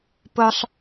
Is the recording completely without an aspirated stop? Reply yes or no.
yes